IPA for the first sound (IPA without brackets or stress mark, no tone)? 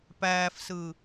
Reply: p